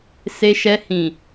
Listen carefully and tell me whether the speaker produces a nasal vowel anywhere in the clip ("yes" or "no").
yes